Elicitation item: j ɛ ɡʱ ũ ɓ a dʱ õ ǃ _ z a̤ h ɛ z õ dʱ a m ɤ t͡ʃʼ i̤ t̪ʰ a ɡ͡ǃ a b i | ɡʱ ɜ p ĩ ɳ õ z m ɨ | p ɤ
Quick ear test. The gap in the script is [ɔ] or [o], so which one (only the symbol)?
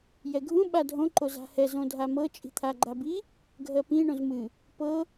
o